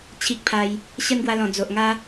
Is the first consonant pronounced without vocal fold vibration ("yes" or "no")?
yes